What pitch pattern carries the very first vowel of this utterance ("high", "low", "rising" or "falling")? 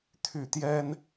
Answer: falling